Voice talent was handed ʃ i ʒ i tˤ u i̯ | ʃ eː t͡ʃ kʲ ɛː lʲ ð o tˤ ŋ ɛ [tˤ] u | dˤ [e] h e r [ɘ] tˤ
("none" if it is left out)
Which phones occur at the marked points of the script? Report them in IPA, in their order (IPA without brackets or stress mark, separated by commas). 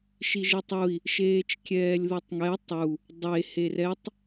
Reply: tˤ, e, ɛ